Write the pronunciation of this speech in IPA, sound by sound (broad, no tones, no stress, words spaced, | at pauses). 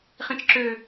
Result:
χĩt͡ʃǁø